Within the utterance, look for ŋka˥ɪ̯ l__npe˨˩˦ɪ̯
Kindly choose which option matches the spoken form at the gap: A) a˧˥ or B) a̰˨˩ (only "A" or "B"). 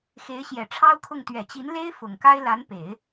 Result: A